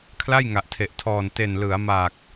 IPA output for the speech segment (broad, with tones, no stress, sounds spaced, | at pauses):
kʰ l a˥˩ j ŋ a˨˩ ʔ tʰ e˨˩ ʔ tʰ ɔː˨˩ n t e˨˩ n l ɯ˩˦ a̯ m a˨˩ k̚